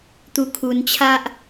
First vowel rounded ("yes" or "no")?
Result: yes